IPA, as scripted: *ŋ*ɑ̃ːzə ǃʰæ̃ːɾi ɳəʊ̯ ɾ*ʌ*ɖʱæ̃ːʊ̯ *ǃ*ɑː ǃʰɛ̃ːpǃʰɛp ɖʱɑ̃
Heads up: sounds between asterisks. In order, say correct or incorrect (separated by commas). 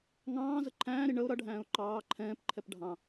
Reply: correct, correct, correct